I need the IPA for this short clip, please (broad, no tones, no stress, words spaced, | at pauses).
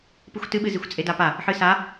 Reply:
pɨxʷtɨɓɨ zixʷt͡sʼedapa | ħɨsa